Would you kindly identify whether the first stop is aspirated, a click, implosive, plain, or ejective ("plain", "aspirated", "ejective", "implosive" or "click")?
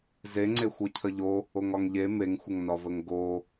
click